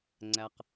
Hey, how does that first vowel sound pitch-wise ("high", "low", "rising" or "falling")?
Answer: low